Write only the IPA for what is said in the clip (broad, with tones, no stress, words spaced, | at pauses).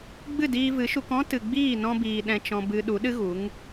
ɡ͡bɨ˦˨diː˧vɨ˨˦ʃu˧k ɔ̃˦ tɨ˨ ɡ͡biː˦˨nɔ̃˧biː˨ ɗɛ̃˦t͡ʃɔ̃˦bɨ˦ ɗu˨˦ɗɨ˦ɣu˨˦ŋ